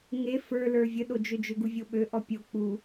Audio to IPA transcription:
ŋ e f ə˞ l ə˞ vʲ ə ɗ o d͡ʒ ø d͡ʒ ø ɡ u vʲ o ɓ ø ʔ ɔ pʲ o k͡p u

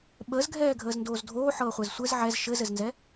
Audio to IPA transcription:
ɓ əː z ɡʱ ɛː ɡʱ əː z n d oː z dʱ oː ħ ɤː χʷ ɛ z sʷ ɘ z ʕ ɛ z ʃ ɘ z ɘ z n z ɛ

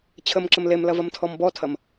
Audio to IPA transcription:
t͡ɕʰ ə m ǁ ə m l e m l ɐ v ɐ m tʰ ɔ m b ɔ tʰ ɐ m

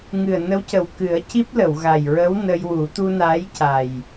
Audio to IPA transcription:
ŋ ɨ˨˩ ə̯ n ə˧˥ w c ə˨˩ w k ɨ˨˩˦ ə̯ c i˦˥ p̚ l ə˨˩˨ w ɣ a˨˩ j ɹ ə˧˥ w n ə˧ j w u˨˩˦ t̪ u˧ n aː˧˥ j c a˨˩ j

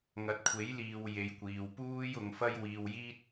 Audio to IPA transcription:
ŋ ɐ˨˥ t̚ kʷʰ e˨˥ j l iː˨ w j e˨˧ j kʷ iː˨ w p uː˥ j ʊ˨˧ ŋ f ɐ˥ j w iː˧ w j iː˥ t̚

